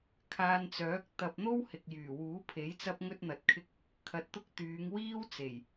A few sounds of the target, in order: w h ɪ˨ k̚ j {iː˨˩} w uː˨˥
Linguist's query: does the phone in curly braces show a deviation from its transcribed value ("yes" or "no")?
yes